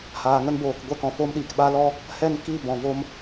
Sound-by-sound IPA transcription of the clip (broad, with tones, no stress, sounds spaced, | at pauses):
h aː˨ ŋ ə˦ n b oː˨ k ɡʷ ɛ˧ k ɔ̃˨ f oː˧ m ɗ iː˨ k ɓ a˦ l ɔ˦ | h ɛ˦˨ n k i˦˨ b ɔ̃˨ v o˦ m